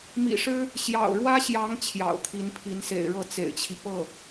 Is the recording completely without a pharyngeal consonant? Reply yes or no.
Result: yes